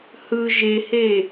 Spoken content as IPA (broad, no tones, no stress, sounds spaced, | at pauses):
h ɯ ʒ e h e